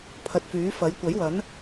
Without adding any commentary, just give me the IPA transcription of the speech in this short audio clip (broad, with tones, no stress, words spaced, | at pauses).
pʰɐ˨t̚fyː˨˥fɐ˨˥j kʷɐ˨˥jwɐ˨˥n